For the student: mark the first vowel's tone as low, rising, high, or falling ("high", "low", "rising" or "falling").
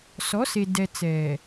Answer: rising